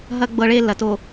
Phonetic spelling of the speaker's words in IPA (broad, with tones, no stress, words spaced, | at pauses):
ɦɐ˦ ɡ͡bɤ˦ɭe˦ lɐ˨to˨